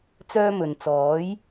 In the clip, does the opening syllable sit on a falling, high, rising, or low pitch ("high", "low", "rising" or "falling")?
high